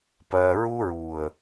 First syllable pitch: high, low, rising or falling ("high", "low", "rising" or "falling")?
low